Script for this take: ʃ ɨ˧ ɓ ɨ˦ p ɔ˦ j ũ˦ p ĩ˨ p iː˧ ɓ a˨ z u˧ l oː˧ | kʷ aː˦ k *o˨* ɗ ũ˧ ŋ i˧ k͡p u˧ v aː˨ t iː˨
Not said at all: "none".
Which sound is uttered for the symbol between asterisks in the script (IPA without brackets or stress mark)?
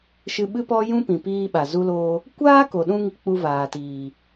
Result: o˨